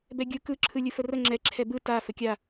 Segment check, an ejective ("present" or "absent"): absent